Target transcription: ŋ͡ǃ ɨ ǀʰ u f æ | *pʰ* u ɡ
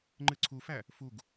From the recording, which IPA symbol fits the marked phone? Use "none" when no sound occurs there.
f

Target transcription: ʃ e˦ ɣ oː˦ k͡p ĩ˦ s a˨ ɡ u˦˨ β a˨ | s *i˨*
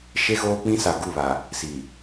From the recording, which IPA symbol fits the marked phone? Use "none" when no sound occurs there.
i˨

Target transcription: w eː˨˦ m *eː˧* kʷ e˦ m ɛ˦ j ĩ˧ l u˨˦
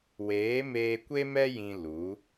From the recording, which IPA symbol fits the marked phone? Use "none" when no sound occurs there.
eː˧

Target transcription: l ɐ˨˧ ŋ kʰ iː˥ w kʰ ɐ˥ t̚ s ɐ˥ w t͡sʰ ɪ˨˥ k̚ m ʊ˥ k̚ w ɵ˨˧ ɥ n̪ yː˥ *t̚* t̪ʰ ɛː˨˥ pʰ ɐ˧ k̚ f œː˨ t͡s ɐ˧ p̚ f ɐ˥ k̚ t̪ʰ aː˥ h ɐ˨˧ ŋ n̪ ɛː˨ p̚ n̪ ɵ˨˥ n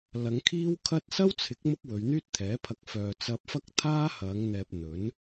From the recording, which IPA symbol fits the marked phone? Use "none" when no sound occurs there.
t̚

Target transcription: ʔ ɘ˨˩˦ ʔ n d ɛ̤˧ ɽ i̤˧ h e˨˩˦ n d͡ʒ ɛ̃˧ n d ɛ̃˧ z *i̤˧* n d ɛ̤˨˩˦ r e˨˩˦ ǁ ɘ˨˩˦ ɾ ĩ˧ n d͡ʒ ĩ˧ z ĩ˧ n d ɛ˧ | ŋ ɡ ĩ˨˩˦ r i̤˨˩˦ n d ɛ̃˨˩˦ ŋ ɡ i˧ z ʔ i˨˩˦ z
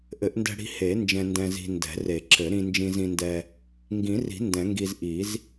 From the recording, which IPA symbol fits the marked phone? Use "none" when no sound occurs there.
i̤˧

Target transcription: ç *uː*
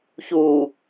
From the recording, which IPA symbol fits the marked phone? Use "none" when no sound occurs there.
uː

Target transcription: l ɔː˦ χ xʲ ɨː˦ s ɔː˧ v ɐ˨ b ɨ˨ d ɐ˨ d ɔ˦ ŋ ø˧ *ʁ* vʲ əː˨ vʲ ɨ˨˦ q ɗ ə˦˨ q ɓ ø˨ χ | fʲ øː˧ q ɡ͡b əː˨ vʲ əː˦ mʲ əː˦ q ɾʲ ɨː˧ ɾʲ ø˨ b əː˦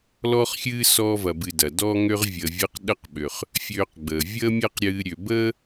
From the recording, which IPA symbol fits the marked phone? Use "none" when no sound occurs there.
ʁ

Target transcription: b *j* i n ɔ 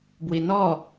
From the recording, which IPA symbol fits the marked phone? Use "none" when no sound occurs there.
w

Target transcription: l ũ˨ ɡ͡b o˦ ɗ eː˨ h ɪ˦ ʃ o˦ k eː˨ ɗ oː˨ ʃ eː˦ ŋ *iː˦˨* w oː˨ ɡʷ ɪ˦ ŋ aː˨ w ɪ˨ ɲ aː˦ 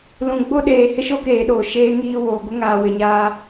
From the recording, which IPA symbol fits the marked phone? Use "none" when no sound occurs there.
iː˦˨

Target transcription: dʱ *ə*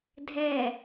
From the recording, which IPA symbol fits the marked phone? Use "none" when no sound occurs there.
ɛ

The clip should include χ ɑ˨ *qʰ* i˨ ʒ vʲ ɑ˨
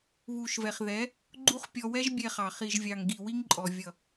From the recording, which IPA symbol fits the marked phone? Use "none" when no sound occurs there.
χ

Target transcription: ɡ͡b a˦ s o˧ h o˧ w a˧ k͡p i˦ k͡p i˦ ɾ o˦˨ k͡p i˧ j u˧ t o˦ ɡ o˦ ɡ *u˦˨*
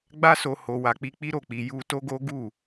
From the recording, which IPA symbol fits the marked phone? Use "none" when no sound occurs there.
u˦˨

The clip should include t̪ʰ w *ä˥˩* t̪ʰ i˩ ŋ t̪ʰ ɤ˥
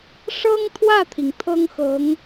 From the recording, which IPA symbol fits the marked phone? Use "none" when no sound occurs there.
ä˥˩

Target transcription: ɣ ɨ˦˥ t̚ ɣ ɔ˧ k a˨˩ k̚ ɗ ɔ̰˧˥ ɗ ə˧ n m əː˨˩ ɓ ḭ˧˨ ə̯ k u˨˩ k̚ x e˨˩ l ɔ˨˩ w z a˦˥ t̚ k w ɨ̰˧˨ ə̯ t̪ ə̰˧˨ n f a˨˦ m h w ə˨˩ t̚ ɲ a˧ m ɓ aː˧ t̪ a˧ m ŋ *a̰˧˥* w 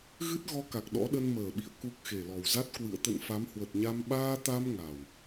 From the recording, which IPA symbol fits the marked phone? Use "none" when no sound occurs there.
a˨˩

